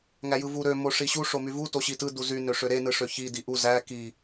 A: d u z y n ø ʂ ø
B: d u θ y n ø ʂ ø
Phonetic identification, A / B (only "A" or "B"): A